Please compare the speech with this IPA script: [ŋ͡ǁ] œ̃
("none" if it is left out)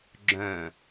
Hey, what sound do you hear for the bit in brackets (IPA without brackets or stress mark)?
ɡ͡ǁ